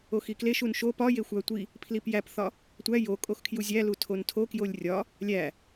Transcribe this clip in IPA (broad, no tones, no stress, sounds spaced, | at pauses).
o x i k l e ʃ u n ʃ o p ɒ j e xʷ æ tʷ i | pʰ l i p j æ p θ ɒ | tʷ æ j o kʼ o x kʰ j u zʲ æ l u tʰ o n tʰ o k j o lʲ rʲ ɒ | lʲ æ